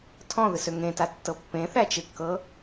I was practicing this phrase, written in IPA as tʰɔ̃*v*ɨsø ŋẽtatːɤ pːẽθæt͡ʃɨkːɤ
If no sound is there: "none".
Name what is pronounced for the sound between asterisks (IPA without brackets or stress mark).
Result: ð